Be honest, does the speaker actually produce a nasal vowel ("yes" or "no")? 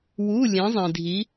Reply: yes